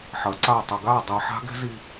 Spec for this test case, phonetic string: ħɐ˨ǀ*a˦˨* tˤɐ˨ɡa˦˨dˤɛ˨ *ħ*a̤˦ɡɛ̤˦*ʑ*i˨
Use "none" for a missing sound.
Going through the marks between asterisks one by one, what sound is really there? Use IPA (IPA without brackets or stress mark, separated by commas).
a˦˨, ħ, z